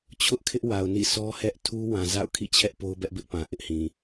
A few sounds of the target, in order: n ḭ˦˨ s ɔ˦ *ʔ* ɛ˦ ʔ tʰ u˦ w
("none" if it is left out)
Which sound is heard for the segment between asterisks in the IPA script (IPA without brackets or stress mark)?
h